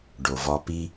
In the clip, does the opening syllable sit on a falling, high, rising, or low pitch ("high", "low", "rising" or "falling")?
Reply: low